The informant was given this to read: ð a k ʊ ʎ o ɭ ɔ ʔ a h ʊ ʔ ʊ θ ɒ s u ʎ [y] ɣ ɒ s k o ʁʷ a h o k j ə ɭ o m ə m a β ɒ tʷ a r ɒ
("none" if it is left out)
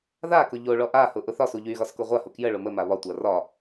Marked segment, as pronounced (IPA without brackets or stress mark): y